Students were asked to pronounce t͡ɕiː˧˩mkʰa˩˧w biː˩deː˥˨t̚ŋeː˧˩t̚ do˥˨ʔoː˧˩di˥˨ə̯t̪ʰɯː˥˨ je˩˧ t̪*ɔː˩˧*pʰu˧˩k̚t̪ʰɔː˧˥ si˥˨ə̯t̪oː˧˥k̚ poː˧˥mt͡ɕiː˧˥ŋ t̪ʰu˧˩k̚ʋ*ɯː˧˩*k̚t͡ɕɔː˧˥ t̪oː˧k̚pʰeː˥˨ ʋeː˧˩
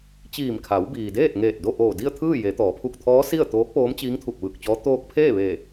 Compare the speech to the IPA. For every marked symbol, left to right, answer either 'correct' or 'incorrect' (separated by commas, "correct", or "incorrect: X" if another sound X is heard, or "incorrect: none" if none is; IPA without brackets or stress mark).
correct, correct